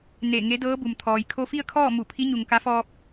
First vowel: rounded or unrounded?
unrounded